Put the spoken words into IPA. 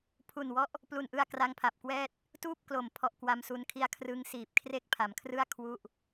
pʰu˨˩nwɔ˦˥ʔ | plu˨˩nʔɯ˧a̯ kra˦˥ŋpʰa˨˩p̚kwɛː˥˩t̚ | tuː˥˩p̚klo˨˩m pʰɔ˦˥ʔkwa˦˥msu˦˥nkʰi˥˩a̯ kʰrɯ˦˥ŋ siː˨˩p̚kʰre˥˩k̚pʰa˩˦mkʰrɯ˥˩a̯ kʰwu˥˩ʔ

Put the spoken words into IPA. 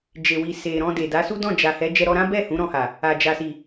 d͡ʒe˨wi˨ se˨ɾɔ̃˧de˨ da˨˦su˦dɔ̃˦˨ d͡ʒa˨hɛ˨˦ d͡ʒɛ˧ ɾɔ˧ɾã˦bɛ˦˨ hũ˨˦ɾɔ̃˧ha˨ | a˨d͡ʒa˨si˨

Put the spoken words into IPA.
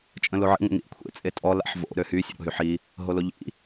t͡ʃʼə̃loʕḭ ŋʷə̰ŋḭʔkʷʰḛ t͡sʼetʼɔ la̰ħvo̰ ɾøhy sʲə̰ɾo̰ɦyħi | ɦoloʎḭ

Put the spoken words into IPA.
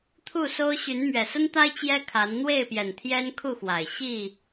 t̪ʰu˥˨so˦ʊ̯ ɕy˨˦nmɥɛ˨˩sə˦nt̪a˦ɪ̯ t͡ɕjɛ˦kʰa˨˦n n̪we˥˨ɪ̯pjɛ˨˩n t̪ʰjɛ˦nkʰu˥˨xwa˨˩ɪ̯ ɕi˥˨

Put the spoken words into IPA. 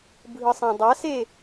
bʱɯsˤãdˤase

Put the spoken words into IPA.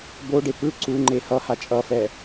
boɖe pɯ ǀuŋ͡ǃe hʌha t͡ʃʼʌfɛ

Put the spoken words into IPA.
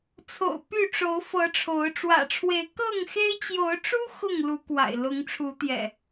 t͡sʰo̰˨˩ʊ̯ py˥˨ ʈ͡ʂo˨˦ʊ̯fɤ˨˦ʈ͡ʂʰo˨˦ʊ̯ ʈ͡ʂwä̰˨˩ʈ͡ʂʰwe˨˦ɪ̯ kɤ˥˨ŋxe˦ɪ̯ t͡ɕjo˨˦ʊ̯ʈ͡ʂu˦ xʊ˥˨ŋ lu˨˦kwa̰˨˩ɪ̯ lʊ˨˦ŋʈ͡ʂʰu˨˦t̪jɛ̰˨˩

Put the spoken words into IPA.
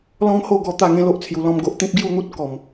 lɔ̃˦ŋho˥˧ɡɔ˧ t̪a˥˧ŋẽ˦lo˦ʔ t͡sʰju˨˩lɔ̃˥˧mɡo˦ʔ t̪ĩ˦p̚ɡju˥˧n̪u˦t̚ kɔ˨˩m

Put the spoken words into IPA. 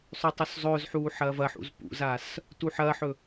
sˤʉtˤoszˤɵːzħuː ħɐːvɐħṵz pṵzas | tuħɐːħɵ

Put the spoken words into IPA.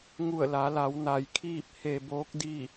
ŋu˧˩ə̯la˩˧la˩˧w na˩jkʰiː˥˨p̚ he˧boː˧˥k̚di˥˨

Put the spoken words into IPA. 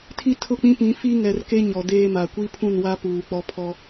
tʰi˦tʰʊ˦˨k͡pĩ˦pĩ˨˦ fi˦ŋɛ˨rke˦ ɲɔ˨deː˦ma˨ kʷi˦ pʰũ˦˨nwa˦ puː˨k͡pɔ˦ pʰɔ˦

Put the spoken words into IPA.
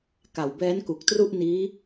ka˨˩wbɛː˦˥nku˨˩k̚ tru˥˩ʔniː˦˥

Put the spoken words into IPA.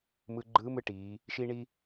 mɯ˧ɡ͡ǃɯː˧˥mɯ˧˥ ʈiː˩˧ | ʃi˥ɳi˥

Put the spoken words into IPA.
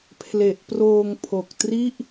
pʰle˨˩ʔproː˧ŋpʰo˨˩k̚tri˥˩ʔ

